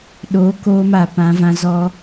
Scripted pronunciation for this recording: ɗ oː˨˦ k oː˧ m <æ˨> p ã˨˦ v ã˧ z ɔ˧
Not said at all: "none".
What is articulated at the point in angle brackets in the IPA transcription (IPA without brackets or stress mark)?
a˨